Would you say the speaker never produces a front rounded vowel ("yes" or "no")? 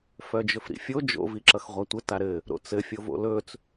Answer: no